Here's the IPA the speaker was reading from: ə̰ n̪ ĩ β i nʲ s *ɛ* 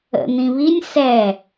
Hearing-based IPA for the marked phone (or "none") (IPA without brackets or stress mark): ɛ